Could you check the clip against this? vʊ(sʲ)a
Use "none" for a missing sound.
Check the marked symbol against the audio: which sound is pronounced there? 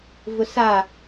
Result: s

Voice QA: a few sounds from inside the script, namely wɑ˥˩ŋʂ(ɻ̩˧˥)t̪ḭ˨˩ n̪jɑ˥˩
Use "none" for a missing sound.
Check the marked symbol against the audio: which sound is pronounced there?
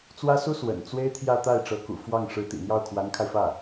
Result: ɻ̩˧˥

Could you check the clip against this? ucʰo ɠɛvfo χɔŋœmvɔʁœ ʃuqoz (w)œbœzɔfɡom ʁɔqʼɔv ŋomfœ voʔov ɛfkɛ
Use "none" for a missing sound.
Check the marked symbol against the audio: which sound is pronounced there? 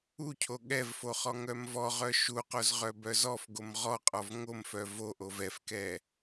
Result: ʁ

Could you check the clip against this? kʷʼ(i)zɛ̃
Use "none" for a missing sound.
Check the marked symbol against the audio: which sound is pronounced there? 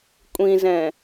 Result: ĩ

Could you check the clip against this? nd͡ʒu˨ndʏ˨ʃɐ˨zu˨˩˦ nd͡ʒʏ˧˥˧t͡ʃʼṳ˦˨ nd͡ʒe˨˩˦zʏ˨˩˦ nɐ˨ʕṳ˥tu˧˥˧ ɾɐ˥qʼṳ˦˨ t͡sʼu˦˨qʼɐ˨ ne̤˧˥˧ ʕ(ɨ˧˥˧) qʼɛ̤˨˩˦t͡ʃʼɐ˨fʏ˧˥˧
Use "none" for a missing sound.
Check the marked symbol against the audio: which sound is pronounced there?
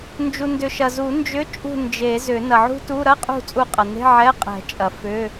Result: ɛ˧˥˧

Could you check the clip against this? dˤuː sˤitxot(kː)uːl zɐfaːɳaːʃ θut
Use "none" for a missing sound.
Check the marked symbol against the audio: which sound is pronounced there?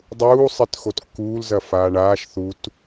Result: kː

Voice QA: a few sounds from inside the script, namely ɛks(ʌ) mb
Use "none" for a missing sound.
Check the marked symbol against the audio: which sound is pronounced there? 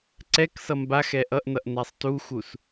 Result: ʌ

